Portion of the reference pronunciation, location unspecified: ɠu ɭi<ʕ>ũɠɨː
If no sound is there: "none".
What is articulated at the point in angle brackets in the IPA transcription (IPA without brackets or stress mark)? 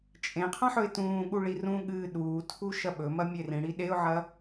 r